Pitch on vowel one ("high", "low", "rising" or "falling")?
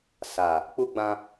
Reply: low